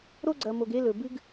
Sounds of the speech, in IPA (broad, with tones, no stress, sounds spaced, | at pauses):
ɾ o˦ ɡ͡ǀ ɐ˨ m o˨ ɡ e˦ l ɵ˨ b ɨ˦ ɡ